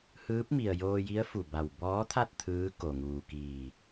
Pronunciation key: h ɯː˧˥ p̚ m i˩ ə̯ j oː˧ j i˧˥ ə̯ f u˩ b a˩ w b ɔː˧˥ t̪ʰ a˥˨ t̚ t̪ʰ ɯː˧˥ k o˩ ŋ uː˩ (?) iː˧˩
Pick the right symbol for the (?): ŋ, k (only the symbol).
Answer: k